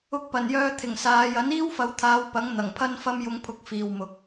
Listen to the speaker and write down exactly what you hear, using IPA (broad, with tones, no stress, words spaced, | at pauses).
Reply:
ʊ˧k̚pɐ˨˩njœː˧ t̪ʰɪ˨˩ŋsaː˨˧j ɐ˨˥niː˥wfɐ˨˧wt̪ʰaː˨˧w pɐ˨˥ŋ n̪ɐ˨˩ŋpʰɐ˥nfɐ˥m jʊ˧ŋ pʰʊ˧k̚fiː˨wmʊ˨k̚